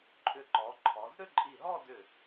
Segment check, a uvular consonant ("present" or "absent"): absent